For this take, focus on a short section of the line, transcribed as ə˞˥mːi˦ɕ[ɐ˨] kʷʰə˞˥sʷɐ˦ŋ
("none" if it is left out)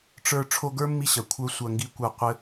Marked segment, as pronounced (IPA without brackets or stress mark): ɐ˨